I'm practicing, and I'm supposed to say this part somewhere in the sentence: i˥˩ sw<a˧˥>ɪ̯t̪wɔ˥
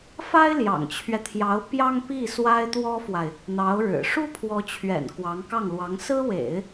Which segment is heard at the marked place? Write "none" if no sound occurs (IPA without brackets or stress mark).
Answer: a˥